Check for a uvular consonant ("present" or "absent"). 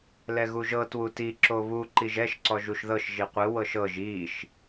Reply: present